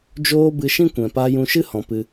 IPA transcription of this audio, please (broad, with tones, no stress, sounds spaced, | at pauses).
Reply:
d͡ʒ oː˧ b ɨ˧ ʃ ĩ˦ kʷ ɛ̃˨ p a˧ j ũ˧ ʃ ɨ˦ h ɔ̃˨ p ɨ˨